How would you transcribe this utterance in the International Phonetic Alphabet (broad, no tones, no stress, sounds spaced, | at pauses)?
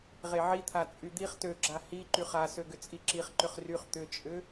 ʁ e ʕ i t̪ʰ a t͡sʼ y d̪ i χ t ø ɡ͡ǁ a h i ǃ y χ a s ø ɡ ʏ t͡sʼ i ǁ i χ ǃ ʏ χ r y χ t̪ ʏ t͡ʃʼ ʏ